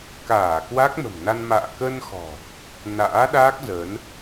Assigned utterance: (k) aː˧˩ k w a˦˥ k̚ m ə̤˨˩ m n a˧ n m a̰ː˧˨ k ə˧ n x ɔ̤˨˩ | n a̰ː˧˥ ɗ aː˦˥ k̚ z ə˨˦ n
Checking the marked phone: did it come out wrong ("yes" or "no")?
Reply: no